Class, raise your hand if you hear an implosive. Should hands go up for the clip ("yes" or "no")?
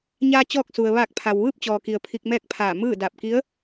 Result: no